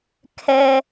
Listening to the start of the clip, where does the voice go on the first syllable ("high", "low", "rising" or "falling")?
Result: high